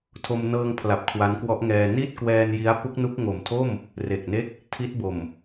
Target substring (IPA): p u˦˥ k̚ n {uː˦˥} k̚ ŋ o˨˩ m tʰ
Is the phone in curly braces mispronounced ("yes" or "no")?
yes